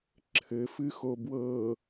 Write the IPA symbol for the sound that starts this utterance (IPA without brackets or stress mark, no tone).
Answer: ǁʰ